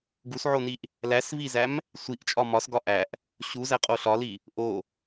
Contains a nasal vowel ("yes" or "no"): no